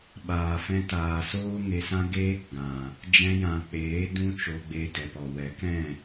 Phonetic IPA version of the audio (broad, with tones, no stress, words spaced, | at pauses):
ɓaː˨ fɛ̃˧taː˨soː˦ ŋe˧sã˦ ɡeː˦k ɡã˨ | d͡ʒɛ̃˧jã˨k͡peː˨˦ dũ˦t͡ʃo˧ɡ͡be˧ dɛ˨pɔ˨ wɛ˨˦kɛ̃˦˨